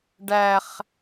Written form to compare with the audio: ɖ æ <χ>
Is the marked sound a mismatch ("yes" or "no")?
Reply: no